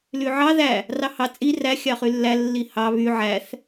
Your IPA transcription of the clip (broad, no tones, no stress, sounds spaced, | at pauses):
l y ʕ ɑ ð æ | r ɑ h ɑ t͡sʼ i r æ xʲ ɑ χ y lː æ lː i h ɑ β y ʕ æ θ